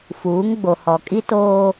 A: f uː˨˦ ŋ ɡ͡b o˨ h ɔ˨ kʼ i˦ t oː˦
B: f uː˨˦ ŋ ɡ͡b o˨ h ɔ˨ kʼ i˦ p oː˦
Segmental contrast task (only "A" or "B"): A